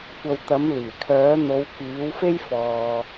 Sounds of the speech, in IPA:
kʷ ɐ˨ w t̪ ɐ˨˥ m l iː˨˩ kʰ œː˨˥ n̪ o˨˧ w k iː˨˥ w f e˥ j f ɔː˨

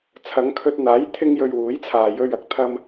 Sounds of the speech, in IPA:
t͡sʰ ɐ˨˧ ŋ kʰ ɵ˧ t̚ n̪ aː˨˥ j t̪ʰ ɪ˧ ŋ j ɵ˨ ɥ w uː˨˥ j t͡sʰ aː˨ j ɵ˧ ɥ ɐ˨˥ k̚ t̪ʰ ɐ˧ m

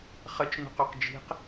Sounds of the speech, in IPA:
χ ə t͡ʃ n ṳ q u q d͡ʒ i̤ q

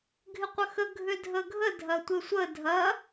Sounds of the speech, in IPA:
ɡʱ ɪ qʷ ə x ə ɡʱ ʏ dʱ ə ɡʱ ə dʱ ɐ tʷ ɪ sʷ ə dʱ ɐ

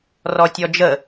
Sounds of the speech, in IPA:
r ɔ tʲ ɔ d͡ʒ ə

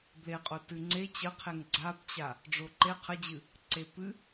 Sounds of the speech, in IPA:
b l e qʼ o t ɨ ŋ͡ǀ e t͡ɕ ə qʰ e ŋ ɡ͡ǀ a b t͡ɕ a | ɖ͡ʐ o ǃ e qʰ ə d͡ʑ ɨ | ǀ e p ɨ

